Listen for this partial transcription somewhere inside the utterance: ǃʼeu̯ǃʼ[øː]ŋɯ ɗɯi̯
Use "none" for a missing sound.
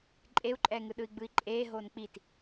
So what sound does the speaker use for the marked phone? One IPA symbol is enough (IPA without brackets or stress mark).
ɛː